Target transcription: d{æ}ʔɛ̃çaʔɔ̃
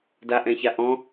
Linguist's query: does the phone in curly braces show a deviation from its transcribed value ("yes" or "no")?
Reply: yes